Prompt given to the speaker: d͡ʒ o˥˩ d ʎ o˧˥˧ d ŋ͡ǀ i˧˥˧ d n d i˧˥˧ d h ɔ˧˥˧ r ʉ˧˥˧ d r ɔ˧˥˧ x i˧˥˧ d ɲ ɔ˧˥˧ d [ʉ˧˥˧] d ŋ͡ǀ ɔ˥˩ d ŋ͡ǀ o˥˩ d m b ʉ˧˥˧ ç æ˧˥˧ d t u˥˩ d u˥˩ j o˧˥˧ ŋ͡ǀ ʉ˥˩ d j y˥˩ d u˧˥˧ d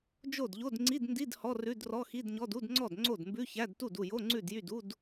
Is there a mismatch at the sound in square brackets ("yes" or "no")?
yes